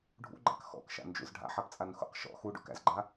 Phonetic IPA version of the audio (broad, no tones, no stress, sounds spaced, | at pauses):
ɖʱ ṵ ɡ͡ǃ æ̰ k x ɔ̰ k ʃ a̰ n d͡ʒ ṵ z ɖʱ a̰ ħ a p t͡sʼ a n x ṵ q ʃ ɔ̰ x u ɖ ṵ k æ̰ z ɡ͡ǃ a